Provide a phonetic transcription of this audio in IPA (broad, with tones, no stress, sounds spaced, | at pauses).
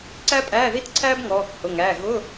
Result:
ǀ æ˥ pʼ æː˧˥˧ ð i˥ t ǀʰ æː˥ b ŋ ɔː˩˧˩ k h ʊ˩˧˩ ŋ æː˩˧˩ ɣ ʊ˧˥˧